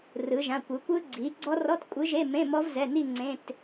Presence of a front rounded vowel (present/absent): absent